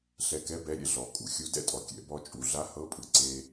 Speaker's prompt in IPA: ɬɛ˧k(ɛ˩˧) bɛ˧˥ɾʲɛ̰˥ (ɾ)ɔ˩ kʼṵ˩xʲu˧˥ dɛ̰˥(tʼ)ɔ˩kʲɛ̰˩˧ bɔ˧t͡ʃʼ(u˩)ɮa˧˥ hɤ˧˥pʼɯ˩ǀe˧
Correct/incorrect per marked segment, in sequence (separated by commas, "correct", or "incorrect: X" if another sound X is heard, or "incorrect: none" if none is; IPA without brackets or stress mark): incorrect: ɛ˧˥, incorrect: ɮ, correct, correct